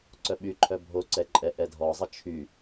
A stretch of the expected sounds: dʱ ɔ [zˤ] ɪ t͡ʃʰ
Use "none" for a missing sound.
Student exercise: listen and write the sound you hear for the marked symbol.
zˤ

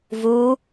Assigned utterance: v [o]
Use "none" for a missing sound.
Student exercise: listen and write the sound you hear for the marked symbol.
u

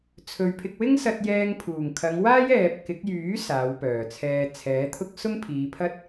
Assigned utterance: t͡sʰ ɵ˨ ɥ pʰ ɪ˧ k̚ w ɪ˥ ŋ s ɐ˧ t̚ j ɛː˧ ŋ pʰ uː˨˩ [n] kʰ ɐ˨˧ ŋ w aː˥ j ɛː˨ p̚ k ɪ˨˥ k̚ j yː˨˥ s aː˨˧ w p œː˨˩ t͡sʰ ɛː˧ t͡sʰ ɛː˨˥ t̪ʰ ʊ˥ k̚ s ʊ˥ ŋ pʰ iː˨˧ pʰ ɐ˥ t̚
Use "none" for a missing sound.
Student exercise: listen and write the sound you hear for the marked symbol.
ŋ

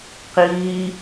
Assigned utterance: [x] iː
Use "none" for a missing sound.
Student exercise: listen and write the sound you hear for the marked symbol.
q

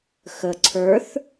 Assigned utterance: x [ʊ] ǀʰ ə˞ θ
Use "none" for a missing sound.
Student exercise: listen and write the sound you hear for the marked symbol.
ə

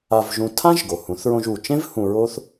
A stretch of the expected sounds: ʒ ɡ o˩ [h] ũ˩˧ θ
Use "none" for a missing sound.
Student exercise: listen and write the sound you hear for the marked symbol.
h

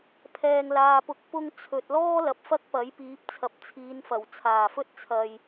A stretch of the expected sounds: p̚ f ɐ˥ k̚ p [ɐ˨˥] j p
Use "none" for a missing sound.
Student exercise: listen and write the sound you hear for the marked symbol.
ɐ˨˥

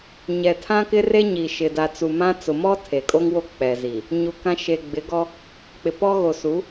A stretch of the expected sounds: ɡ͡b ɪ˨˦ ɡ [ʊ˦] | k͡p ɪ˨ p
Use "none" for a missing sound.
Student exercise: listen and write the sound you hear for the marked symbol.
ɔ˦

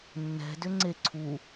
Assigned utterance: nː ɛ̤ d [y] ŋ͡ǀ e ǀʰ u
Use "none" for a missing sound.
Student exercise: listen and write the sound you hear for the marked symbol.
ʏ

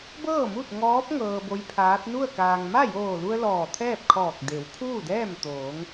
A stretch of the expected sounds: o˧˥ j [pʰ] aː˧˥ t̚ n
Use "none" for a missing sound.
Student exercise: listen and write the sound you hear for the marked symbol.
pʰ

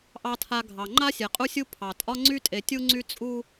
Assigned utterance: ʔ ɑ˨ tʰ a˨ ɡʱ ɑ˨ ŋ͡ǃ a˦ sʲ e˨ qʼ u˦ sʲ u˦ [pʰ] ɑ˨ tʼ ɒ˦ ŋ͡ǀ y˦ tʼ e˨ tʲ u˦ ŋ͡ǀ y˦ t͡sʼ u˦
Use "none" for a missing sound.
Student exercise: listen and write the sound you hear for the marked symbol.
pʰ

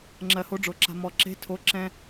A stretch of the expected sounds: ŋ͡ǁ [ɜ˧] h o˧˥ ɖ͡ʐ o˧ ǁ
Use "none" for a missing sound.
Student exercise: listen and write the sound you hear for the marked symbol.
ɜ˧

